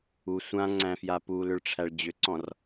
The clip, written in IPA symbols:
u sʷãŋ͡ǀæ̃fja pulʏɭʈ͡ʂʰæɭ d͡ʑʏǀɔ̃r

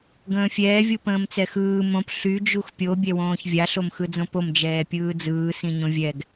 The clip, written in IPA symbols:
ɡə̃ːfʲɛː vʲupə̃ːmt͡sɛxɯː mõp ɬy d͡ʒuxpʲo bʲɛwõːçvʲa ɬomxɯd͡zõpom d͡ʒɛːpʲɯːd͡zɯː sĩɲõvʲɛɡ

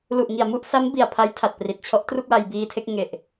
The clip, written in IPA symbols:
lu˨˩ʔŋi˨˩a̯mu˥˩ʔsa˦˥m bi˨˩a̯pʰa˦˥j tʰa˨˩t̚pri˨˩t̚t͡ɕʰɔ˦˥ʔ tru˥˩k̚wa˧jbiː˧tʰe˥˩k̚ ŋe˨˩ʔ

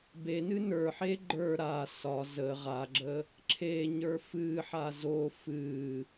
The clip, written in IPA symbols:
benɨ nə˞ħe ɡ͡ǃə˞ ɾa sɒ zə ʁaɡ͡ǁə | ǁʰe ɲə˞fɨħa zo fɨ

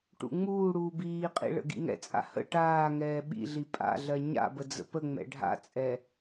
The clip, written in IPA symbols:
ʈṵŋ͡muːɽuː biːqʼḭ ɭə̰ɡḭŋɛ̰t͡sʼa̰ hə̰ ʈaːŋɛː ɓḭɮi pʼa̰ɮɜ ɲa̰bə d͡zə̰pəŋ͡mɛ̰ ɖʱa̰t͡sʼɛ

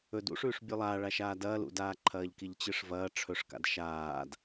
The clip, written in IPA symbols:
ɵd ṵʂʉːʂ bʲʉlˠaː ɭaʃaːdɐːl ṵdaːǃʰɐːʎ kiʎt͡ɕɨʂvɐː ʈ͡ʂʰɵʂ ka̰dʃaːd

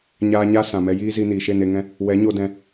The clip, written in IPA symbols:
ɲaː˧ɲa˦ sã˨mɛ˧jiː˦zi˧ niː˨ʃe˦˨ne˧ŋɛ̃˦ | wɛ˨˦ɲo˧dɛ̃˧

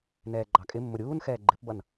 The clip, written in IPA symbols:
nɛːɡ͡ǃɑkʼɪmːʊ ɾʲuːnxɛː ɡ͡ǃɪpbʌn

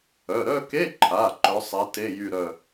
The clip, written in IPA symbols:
œ˩˧˩ ɾœ˥˧ke˧˥˧ǃʰa˩˧˩ ǃœ˨˦sˤe˨˦ te˧˥˧jy˥˧ɾœ˥˧

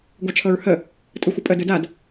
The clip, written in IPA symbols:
ɡʷat͡ʃʰɤɹhə | tʼɯxʷəpʼə dɯdad

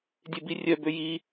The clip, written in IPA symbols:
dʲebirʲœ bøji

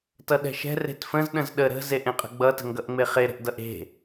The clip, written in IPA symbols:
tʌɗɛ̤ʃɛ̤ re̤tfə̃z ɗə̃zɗə ɾə̤ zeʔẽqʼə̤ɡ͡bʌ tə̤ŋɡʌʔŋ͡meχe ɾə̤ʔdʌʔe̤

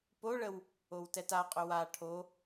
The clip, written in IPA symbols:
poɭəw | owtɛtaqʼʏ wa ʈʰo

